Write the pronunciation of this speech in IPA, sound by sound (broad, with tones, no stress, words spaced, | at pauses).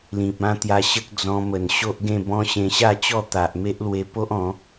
lĩ˨p̚ã˦t̪ja˧ɕə˦k̚ d͡zɔ̃˧mə˨˩n ɕo˦ʔ ɡẽ˥˧bɔ̃˦ ɕẽ˧ɕa˥˧t͡ɕɔ˥˧ t̪a˨ʔ me˦ʔlwe˧po˦ʔ ɔ̃˨˦